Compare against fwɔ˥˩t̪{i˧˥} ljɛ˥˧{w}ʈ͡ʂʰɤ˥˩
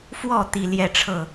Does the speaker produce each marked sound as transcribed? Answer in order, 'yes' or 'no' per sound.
no, no

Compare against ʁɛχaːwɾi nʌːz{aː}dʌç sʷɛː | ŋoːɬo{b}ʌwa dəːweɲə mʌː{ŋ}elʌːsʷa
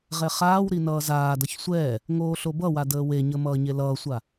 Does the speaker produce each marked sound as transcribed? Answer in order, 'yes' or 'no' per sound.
yes, yes, no

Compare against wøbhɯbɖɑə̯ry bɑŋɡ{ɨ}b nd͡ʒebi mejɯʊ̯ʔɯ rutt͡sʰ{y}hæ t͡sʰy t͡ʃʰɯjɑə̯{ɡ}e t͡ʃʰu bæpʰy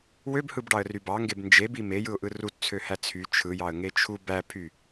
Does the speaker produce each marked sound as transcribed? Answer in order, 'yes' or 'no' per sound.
no, no, no

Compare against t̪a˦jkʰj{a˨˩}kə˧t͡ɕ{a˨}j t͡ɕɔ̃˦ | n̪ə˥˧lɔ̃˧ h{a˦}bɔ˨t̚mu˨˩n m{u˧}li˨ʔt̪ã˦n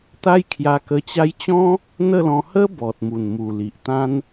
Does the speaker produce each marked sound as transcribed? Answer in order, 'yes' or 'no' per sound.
no, no, no, no

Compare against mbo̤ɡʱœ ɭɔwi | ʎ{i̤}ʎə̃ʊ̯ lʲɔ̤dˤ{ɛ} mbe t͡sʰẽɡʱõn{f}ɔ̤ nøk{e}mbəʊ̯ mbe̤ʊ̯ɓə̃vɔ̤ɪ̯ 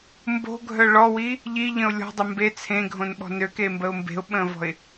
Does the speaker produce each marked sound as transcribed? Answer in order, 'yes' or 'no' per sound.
no, no, no, yes

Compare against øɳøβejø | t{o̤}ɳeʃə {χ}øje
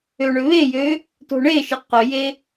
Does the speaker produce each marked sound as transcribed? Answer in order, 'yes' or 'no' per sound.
yes, no

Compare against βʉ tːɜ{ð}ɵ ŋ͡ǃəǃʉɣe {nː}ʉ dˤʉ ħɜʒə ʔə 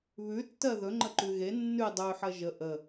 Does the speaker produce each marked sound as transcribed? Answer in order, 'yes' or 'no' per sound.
yes, yes

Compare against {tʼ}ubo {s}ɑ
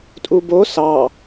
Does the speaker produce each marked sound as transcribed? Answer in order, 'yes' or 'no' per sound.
yes, yes

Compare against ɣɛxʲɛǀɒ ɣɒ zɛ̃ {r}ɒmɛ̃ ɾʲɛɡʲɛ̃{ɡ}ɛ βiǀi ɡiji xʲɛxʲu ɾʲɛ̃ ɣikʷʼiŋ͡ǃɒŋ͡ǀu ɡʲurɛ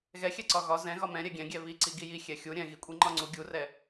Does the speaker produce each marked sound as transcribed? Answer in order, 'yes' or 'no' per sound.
no, no

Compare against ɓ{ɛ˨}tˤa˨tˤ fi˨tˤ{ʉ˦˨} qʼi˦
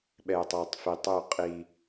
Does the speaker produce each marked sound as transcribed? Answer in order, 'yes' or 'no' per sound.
yes, yes

